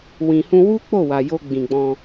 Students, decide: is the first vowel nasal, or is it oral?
nasal